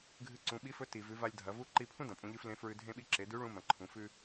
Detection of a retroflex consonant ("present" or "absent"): present